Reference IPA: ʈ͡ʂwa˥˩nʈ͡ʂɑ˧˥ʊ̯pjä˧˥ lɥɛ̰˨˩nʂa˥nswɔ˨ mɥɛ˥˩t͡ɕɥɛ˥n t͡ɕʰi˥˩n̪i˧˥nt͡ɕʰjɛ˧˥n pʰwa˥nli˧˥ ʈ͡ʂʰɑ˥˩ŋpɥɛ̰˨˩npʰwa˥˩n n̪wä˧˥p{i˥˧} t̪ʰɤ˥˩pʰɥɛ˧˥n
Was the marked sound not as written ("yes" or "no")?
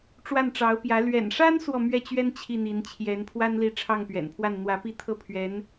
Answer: no